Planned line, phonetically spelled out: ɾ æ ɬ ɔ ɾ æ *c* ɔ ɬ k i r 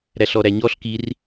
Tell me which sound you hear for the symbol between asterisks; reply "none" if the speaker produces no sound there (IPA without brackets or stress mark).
ɲ